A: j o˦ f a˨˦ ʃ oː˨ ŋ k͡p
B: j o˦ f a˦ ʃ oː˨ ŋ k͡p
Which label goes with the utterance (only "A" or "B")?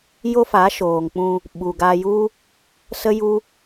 A